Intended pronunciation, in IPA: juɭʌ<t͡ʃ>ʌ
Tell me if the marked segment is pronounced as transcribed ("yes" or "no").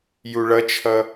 no